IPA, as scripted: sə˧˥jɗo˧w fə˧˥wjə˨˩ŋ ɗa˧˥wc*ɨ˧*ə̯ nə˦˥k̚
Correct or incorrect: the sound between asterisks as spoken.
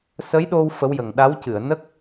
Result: incorrect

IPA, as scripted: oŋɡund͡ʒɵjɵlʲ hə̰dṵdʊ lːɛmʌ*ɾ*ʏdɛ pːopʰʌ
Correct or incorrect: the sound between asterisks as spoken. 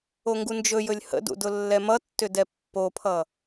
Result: incorrect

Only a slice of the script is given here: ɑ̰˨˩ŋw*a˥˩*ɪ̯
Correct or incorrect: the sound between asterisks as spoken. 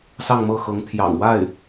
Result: correct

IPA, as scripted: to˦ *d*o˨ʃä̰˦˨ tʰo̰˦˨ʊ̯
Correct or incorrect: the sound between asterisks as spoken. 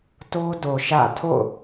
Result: correct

